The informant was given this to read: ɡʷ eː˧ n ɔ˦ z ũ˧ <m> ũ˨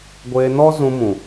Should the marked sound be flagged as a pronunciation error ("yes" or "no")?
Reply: no